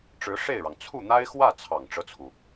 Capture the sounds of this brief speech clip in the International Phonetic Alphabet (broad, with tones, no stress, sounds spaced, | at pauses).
ʈ͡ʂ ɻ̩˧˥ ʂ e˥˩ ɪ̯ ɻ ɑ˩ ŋ t͡sʰ u˥˩ n̪ a˥ ɪ̯ x w ä˥˩ t͡sʰ ɑ˨˩ ŋ ʈ͡ʂ ɤ˦ t͡sʰ u˩